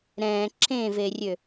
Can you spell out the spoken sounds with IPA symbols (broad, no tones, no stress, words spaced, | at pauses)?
ɾɛ̃ ǁʰẽverʲø